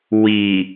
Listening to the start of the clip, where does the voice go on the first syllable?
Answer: low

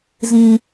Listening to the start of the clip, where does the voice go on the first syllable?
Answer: high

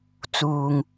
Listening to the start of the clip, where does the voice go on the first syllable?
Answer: low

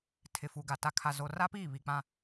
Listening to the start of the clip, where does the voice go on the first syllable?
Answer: low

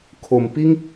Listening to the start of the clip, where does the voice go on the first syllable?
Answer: low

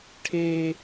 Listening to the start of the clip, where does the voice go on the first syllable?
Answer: high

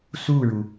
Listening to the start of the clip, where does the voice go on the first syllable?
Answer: falling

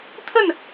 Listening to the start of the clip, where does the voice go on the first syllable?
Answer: falling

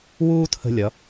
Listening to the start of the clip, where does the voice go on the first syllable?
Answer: high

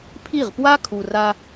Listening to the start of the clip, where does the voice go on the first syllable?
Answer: falling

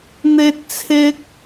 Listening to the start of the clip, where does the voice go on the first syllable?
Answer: high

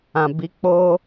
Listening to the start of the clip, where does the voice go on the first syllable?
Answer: low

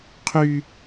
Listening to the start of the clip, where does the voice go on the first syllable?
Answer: high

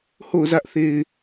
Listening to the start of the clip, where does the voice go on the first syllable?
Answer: falling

